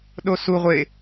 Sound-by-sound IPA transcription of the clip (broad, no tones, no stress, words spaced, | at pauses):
ɗosu ʁʷe